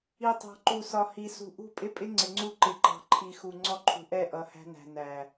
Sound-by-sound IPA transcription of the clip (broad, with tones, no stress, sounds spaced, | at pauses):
i˨ tˤ ɑ̤˨ ǃ u˨ s ɒ˨ h i˨ s ṳ˨ ʔ ṳ˦˨ pʼ ɪ˦ pʼ ɪ˦ ŋ͡ǀ ɪ˨ ŋ͡ǀ u˦˨ ǃ ɪ˨ ǃ ɑ̤˨ ǃʰ i˨ x u˨ ŋ͡ǀ ɔ˦ ǃʰ ṳ˨ ʔ ɛ˦˨ ʔ ʌ˨˦ h æ̤˦ n æ̤˨ n æ˨